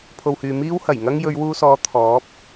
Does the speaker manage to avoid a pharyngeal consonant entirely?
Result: yes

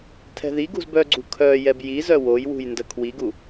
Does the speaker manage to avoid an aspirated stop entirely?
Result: no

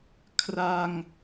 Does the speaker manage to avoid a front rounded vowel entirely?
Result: yes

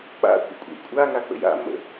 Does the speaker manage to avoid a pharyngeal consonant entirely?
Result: yes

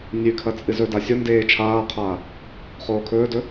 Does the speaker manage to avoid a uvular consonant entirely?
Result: no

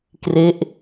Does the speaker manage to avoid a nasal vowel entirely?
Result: yes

